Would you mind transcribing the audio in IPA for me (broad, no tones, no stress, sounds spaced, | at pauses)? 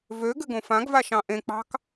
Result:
v ø ɡ ɘ ɡ õ f ã ɡ v a ʃ ɑ̃ ʔ ẽ k͡p ɑ̤ k